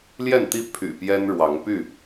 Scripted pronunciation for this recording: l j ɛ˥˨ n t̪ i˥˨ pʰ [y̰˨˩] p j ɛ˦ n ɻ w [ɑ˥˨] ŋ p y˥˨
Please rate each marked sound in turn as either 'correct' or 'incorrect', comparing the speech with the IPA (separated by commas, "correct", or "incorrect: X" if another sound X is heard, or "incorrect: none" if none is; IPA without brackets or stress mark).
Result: correct, incorrect: ɑ˨˦